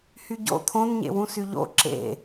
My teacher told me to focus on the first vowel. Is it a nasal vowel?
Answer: no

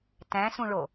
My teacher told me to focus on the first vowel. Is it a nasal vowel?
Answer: yes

